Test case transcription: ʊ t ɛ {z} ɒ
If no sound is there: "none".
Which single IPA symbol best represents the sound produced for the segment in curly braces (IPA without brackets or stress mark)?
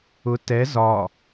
z